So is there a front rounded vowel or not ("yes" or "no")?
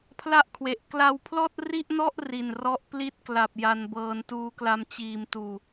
no